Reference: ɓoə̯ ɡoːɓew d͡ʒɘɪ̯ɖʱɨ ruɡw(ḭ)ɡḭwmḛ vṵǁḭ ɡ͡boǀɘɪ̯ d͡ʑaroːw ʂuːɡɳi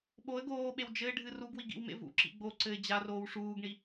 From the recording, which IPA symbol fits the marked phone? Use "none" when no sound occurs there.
i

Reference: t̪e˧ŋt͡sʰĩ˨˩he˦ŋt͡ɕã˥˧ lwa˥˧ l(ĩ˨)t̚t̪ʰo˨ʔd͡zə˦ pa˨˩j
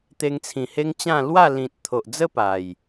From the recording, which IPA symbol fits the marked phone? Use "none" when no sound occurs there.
ĩ˨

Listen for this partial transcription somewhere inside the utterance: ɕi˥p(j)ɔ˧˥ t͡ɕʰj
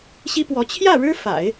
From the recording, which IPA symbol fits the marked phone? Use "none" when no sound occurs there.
w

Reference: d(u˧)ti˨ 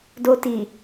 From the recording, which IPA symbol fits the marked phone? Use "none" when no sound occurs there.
o˧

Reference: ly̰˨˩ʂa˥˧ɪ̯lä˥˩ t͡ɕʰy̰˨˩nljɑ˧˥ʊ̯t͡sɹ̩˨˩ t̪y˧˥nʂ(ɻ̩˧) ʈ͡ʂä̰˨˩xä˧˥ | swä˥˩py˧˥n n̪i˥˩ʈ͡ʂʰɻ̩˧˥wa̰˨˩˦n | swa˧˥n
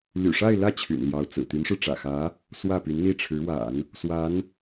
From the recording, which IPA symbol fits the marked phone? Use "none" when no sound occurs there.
ɻ̩˧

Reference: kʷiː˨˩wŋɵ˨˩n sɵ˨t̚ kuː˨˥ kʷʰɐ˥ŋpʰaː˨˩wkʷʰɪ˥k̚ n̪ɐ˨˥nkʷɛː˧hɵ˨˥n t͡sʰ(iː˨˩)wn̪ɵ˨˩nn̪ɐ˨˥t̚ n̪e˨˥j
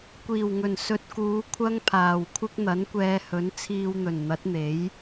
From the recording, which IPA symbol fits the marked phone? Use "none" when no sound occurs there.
iː˧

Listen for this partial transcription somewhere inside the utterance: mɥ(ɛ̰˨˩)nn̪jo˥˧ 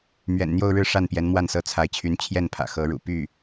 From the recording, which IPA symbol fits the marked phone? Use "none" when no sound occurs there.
ɛ̰˨˩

